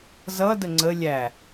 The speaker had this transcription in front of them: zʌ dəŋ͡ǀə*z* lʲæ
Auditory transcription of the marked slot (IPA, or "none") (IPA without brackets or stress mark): none